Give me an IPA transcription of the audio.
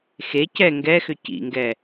x e c ɛ ŋ ɡ ɛ x ʏ c ḭ ŋ ɡ ɛ

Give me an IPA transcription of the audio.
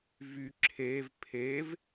v y ǁʰ e v pʰ e v

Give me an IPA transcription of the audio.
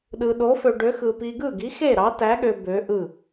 ɗ ɯ˧ ɗ o˧˥ f ø˧ ɖ ø˧˥ x ɯ˧ p i˧ ɡ ɯ˥˨ ɡ i˧˥ x e˥˨ ɾ ɑ˧˥ t æ˧˥ ɠ ø˧ b ø˧˥ ʔ ɯ˥˨

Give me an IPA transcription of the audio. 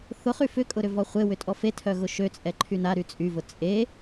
θ ʊ χ y f ʏ kʼ ʊ ɾ ʏ v ɔ χʷ e w ʏ tʼ ɔ f e tʰ œ ɣ ʊ ʃ ø t͡sʼ ɛ ǃʰ y n a ɾ y t͡sʼ y v ʊ t͡sʼ e

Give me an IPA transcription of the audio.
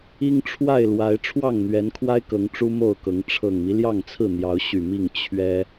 i˦ ŋ ʈ͡ʂʰ w a˥˨ ɪ̯ l w a˨˦ ɪ̯ ʈ͡ʂʰ w ɑ˥˨ ŋ n̪ ɥ ɛ˨˦ n kʰ w a˦ ɪ̯ k ɤ˨˦ ŋ ʈ͡ʂ u˦ m o˥˨ ʊ̯ k ɤ˨˦ ŋ ʈ͡ʂʰ ɤ˨˩ ŋ m i˦ l j ɑ˥˨ ŋ t͡sʰ ɹ̩˥˨ n̪ j ɑ˨˦ ʊ̯ ɕ y˨˩ m i˥˨ ŋ t͡ɕʰ ɥ ɛ˦

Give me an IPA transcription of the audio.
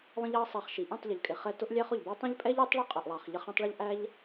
lˠ ə̃˦ ʎ ɑ˦ sˤ ɑ˧ χ ʃ i˨ ʔ ĩ˦˨ tˤ ʎ ə˨ ʎ kʼ ɪ˨ χ ɛ˧ t ʊ˦ ʔ lʲ æ˦ χ ʊ˨ ʎ b æ˦ tˤ ə̃˦ ʎ pʼ ɛ˦ ʎ u˨˦ tˤ ɭ ə˦ qʼ ʊ˨ ʔ lˠ ɑ˨ χ ʎ ə˧ χ ĩ˧ tˤ ɭ ʊ˦ ʎ ʔ æ˦ ʎ

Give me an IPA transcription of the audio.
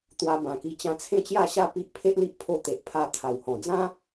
t̪ w a˧ b ã˨˩ k i˧ t͡ɕ ã˧ t͡sʰ ẽ˥˧ t͡ɕ j a˥˧ ɕ a˥˧ p i˦ ʔ pʰ e˦ ʔ l i˦ ʔ pʰ o˧ t̪ e˨ ʔ pʰ a˧ t̪ʰ a˨˩ w h ɔ̃˨˩ d͡z ã˦

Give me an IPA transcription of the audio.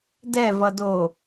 d ɛ v ʌ d o

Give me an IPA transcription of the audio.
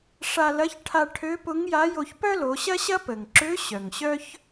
ʂ a˧ l ɐ˧˥ ç ʈʰ a˧ ʈʰ ø˧˥ p ʊ˧˥ ŋ j a˧˥ j o˧ ç p œ˥ l o˩˧ ɕ ɐ˥ ɕ ɐ˥ p ə˩ ŋ ǁ ø˧˥ ɕ œ˩ ŋ ɕ œ˥ ç

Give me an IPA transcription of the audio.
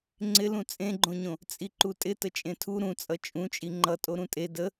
ŋ͡ǀ ɪ l ũ t͡sʼ ẽ ɡ͡ǃ õ ɲ õ | t͡sʼ i ǃ u tʼ ɪ t ə t͡ʃʼ ẽ tʰ u ɾ ũ t͡sʼ ʌ t͡ʃʼ ũ t͡ʃʼ i ŋ͡ǃ ʌ tʼ o ɾ ũ tʼ e d ə

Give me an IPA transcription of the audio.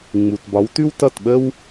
ŋ͡m u˨ t b ɒ˨˦ w t ʉ˦ w t ʌ˦˨ t ɓ ə˦ w

